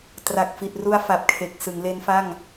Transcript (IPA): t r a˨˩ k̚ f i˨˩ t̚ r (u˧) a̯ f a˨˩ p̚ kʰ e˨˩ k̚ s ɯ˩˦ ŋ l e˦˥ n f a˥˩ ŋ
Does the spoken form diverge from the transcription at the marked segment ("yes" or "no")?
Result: no